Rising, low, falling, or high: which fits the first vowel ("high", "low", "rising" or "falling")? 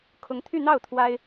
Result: rising